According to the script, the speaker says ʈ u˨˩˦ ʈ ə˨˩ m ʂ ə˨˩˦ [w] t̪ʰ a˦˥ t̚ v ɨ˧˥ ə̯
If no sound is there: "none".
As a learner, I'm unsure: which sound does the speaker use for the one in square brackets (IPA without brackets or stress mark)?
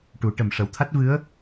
w